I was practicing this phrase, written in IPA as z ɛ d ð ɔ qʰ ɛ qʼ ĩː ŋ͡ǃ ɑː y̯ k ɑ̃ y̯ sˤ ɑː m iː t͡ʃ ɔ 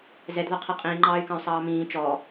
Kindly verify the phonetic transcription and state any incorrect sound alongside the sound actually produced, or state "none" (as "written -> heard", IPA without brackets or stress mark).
iː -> ĩː